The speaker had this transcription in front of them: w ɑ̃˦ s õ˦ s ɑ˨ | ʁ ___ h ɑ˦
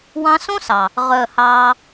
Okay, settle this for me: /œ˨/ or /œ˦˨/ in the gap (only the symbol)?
œ˦˨